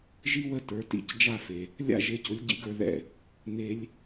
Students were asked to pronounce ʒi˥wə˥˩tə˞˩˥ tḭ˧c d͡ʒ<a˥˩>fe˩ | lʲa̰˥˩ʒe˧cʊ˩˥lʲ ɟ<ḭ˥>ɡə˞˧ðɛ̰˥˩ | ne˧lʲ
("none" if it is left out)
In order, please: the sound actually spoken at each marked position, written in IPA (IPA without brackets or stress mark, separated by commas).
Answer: a˥˩, ḭ˥